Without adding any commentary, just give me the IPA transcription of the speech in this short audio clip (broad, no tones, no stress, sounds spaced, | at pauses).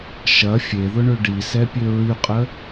ʃ ɐ fʲ e ð ʊ ɳ ø ɖ i s ɛ pʲ ø ɹ y qʼ ə